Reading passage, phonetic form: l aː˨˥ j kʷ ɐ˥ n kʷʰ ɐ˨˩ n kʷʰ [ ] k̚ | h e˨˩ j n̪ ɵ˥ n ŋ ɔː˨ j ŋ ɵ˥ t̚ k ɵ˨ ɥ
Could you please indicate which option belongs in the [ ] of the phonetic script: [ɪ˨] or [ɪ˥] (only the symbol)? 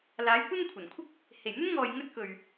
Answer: ɪ˥